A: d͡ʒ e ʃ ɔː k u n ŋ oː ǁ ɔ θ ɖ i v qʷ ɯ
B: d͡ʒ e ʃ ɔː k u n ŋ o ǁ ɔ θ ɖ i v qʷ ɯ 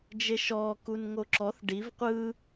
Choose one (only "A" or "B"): B